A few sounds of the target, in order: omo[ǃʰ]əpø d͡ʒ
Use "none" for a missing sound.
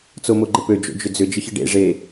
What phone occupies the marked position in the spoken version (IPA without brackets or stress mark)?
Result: ɡ͡ǃ